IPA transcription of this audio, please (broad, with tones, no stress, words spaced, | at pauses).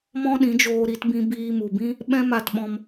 mɔ̃˦ɗĩ˨˦d͡ʒoː˧ ɾi˧tbĩ˧ biː˧mu˨bĩ˦ | ɓɛ̃˦ma˧tɓɔ̃˧m